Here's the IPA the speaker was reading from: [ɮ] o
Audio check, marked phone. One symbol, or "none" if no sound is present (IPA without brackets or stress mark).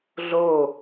ɮ